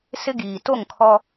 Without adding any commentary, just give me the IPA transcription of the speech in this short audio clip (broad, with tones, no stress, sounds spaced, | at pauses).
s ɪ˦ ɡ iː˨ t o˦˨ ŋ kʰ ɔ˦